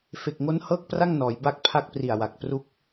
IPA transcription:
f e˨˩ k̚ ŋ o˦˥ n h ɤː˥˩ k̚ p r a˥˩ ŋ n ɔː˩˦ j b a˦˥ k̚ pʰ a˦˥ k̚ p r i˨˩ a̯ w a˨˩ k̚ p r u˦˥ k̚

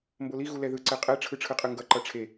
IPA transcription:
m b o l i ɣ u l ɛ ð ɯ ǀ ɛ qʼ ɛ ʈ͡ʂʰ ɯ ʈ͡ʂʰ ɯ qʼ ɯ ŋ ɡ ʌ ǃ ʌ ʈ͡ʂʰ e

